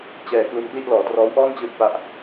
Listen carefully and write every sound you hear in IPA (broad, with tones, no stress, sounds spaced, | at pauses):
t͡ɕ ɛː˧ k l u˧ n p l i˥˩ ʔ l ɔː˨˩ t r ɔː˦˥ w ʔ ɔː˥˩ n t͡ɕ ɯː˦˥ t̚ p a˦˥ ʔ